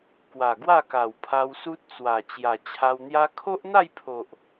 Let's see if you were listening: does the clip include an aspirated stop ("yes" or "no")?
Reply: yes